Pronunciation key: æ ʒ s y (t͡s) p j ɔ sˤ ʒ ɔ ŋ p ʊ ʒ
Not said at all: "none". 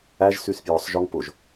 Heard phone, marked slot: s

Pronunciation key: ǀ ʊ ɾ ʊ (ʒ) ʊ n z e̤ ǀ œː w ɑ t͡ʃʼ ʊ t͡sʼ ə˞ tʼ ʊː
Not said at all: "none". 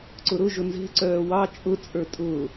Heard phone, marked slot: ʒ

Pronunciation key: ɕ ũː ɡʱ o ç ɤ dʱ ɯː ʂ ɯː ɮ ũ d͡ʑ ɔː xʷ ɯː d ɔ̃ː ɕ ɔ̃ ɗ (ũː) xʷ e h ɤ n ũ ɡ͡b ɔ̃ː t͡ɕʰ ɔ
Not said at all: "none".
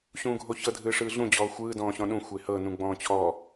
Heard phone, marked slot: ũ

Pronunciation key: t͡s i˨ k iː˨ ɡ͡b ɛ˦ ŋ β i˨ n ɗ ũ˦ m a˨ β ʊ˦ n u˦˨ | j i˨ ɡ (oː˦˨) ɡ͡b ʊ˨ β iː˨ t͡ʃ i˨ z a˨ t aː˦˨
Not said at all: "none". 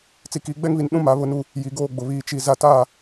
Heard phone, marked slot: oː˦˨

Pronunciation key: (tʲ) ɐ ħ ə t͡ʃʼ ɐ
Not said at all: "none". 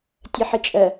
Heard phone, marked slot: tʲ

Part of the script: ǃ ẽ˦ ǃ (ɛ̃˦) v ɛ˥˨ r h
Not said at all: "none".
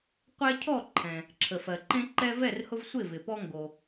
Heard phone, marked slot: ɛ˦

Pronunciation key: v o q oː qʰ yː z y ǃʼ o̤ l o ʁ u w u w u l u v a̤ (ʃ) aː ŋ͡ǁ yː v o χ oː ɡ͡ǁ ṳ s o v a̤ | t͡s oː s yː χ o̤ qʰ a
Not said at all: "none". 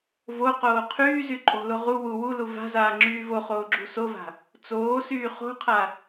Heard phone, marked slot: z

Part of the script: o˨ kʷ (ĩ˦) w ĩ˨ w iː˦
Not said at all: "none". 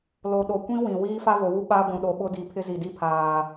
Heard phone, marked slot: ĩ˦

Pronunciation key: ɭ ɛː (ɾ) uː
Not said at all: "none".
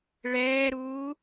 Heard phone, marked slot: ɾ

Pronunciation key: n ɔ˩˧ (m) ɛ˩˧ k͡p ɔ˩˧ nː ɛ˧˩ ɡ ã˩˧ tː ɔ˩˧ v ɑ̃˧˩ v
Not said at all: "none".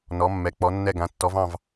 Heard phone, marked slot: mː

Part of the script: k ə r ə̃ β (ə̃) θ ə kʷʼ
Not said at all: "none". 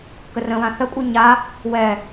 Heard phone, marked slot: ã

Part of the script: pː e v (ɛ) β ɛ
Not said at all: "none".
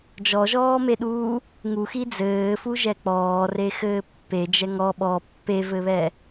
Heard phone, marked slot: ɘ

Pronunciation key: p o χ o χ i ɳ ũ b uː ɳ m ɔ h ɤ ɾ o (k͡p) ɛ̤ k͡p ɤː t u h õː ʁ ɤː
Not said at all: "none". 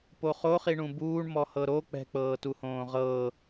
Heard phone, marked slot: k͡p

